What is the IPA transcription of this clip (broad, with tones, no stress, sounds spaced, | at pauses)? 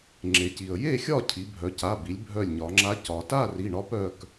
ŋ͡ǁ e˩ c i˩ ə̯ j e˥˨ xʲ ɒ˥˨ cʰ i˩˧ bʱ œ˩˧ c a˩˧˩ b i˩˧ lʲ bʱ œ˧˩ lʲ ɲ ɒ˩˧ ŋ͡ǁ a˧˥ c ɒ˩ t a˥˨ r i˩˧˩ ɳ ɒ˧˥ p œ˩˧˩ k